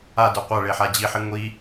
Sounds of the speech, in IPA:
a d ə˞ qʷ a ɭ e ħ a d͡ʑ i ħ i ŋʷ i

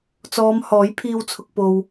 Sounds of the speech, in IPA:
t͡s ɔː˨˧ m h ɔː˨˥ j pʰ iː˧ w t͡sʰ ʊ˨ k̚ p o˨ w

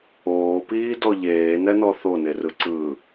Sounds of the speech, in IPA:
oː p iː d ɔ ʎ eː n ɛ n ɔ θ o n e r ɯ ǀ ɯː

